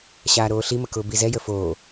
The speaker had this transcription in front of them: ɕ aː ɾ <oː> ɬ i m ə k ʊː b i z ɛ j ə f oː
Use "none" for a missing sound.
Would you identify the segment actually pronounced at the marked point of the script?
oː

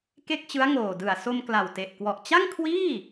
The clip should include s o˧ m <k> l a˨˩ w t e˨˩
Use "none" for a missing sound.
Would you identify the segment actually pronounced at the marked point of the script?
k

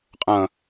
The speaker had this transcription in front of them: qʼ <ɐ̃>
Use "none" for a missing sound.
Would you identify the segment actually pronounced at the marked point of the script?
ɐ̃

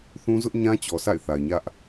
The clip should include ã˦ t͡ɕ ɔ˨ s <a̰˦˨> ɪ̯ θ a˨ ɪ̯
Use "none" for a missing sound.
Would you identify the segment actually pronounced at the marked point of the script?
a̰˦˨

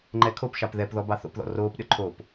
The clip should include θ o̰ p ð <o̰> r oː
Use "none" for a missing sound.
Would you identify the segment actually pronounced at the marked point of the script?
ɔ̰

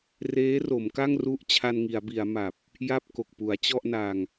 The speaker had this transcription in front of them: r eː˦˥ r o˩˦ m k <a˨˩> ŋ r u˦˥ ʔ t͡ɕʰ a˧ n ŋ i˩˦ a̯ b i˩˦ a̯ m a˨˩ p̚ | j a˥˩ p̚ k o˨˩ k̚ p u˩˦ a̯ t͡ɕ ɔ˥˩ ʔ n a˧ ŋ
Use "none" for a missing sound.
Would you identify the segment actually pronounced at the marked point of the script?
a˥˩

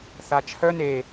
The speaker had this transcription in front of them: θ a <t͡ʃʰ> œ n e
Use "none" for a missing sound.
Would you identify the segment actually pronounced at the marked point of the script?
t͡ʃʰ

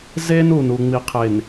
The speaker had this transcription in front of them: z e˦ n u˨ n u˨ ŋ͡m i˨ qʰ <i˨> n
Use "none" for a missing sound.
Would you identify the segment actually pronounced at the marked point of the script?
e˨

